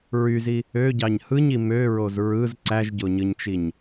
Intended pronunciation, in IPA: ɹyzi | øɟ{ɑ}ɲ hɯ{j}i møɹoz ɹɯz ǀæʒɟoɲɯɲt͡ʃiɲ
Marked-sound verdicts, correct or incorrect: correct, incorrect: ɲ

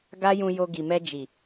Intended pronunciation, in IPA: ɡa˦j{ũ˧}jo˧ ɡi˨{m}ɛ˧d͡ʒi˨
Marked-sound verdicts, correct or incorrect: correct, correct

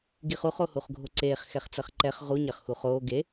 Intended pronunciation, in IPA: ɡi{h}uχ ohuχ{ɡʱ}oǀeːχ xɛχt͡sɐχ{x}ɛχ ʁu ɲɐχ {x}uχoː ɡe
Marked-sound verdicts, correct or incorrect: incorrect: χ, correct, incorrect: ǃ, correct

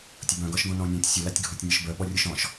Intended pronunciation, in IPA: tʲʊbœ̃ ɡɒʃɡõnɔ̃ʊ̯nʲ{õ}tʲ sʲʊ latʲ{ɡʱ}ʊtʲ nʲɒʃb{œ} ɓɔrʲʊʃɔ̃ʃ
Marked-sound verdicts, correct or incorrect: incorrect: ɔ̃, correct, correct

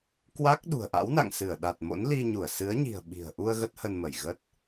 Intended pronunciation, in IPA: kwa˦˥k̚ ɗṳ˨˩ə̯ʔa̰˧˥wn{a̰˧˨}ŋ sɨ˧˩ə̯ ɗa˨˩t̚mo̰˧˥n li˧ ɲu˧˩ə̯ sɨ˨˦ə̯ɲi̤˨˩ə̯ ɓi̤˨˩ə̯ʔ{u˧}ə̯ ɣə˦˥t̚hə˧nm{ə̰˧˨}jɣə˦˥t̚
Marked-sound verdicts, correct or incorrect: correct, correct, incorrect: ə˧˩

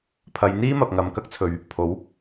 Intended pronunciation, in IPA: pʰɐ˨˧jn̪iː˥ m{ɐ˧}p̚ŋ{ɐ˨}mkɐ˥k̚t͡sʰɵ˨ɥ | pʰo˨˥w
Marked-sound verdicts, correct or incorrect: incorrect: ɐ˨, correct

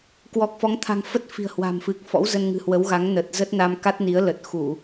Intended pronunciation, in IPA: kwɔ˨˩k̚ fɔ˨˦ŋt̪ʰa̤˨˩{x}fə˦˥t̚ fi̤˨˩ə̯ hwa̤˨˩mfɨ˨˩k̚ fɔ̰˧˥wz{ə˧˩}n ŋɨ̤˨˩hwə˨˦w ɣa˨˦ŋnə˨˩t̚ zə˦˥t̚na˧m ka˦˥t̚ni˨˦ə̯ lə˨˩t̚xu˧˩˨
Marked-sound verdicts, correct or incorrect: incorrect: ŋ, incorrect: ə˧

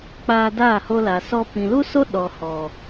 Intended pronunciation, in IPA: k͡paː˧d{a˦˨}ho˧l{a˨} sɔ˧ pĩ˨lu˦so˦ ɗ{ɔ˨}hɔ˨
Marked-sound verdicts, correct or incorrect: incorrect: aː˦˨, correct, correct

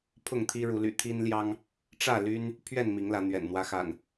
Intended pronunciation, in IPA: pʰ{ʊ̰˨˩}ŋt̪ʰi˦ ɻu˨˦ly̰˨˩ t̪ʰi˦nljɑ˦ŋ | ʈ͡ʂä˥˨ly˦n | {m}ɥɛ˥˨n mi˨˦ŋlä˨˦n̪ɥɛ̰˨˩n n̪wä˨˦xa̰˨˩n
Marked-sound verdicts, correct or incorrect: incorrect: ʊ˥˨, incorrect: pʰ

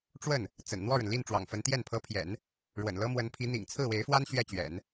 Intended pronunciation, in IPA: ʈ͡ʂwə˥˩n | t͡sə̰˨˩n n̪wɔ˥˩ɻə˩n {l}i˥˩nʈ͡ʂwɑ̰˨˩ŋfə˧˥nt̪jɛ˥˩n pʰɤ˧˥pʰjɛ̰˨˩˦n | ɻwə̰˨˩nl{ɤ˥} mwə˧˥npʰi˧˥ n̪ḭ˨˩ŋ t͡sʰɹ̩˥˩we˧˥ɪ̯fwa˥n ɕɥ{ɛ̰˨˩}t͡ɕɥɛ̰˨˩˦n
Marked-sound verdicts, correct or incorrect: correct, correct, incorrect: ɛ˥˩

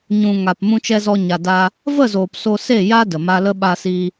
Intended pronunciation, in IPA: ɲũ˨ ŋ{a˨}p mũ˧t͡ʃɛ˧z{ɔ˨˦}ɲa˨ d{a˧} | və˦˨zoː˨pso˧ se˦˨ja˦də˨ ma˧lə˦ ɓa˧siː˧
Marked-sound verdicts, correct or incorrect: correct, incorrect: ɔ˧, correct

